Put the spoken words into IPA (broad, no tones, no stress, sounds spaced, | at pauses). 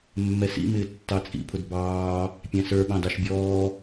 mː ɛ s ḭ m ɪː tː ɑ t͡sʼ ḭ pʰ ʊ d b ɑː | pʲ æ̃ s ə˞ ɓ ɑ̃ d ɑ ʃ bʲ ɔː